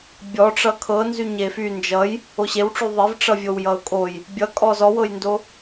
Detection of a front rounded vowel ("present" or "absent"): present